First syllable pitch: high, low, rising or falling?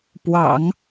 low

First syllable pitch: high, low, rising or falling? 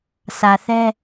low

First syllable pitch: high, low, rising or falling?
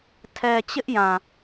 low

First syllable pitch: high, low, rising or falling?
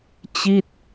falling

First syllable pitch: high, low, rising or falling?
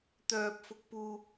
high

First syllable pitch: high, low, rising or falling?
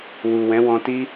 low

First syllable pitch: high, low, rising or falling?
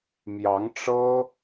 rising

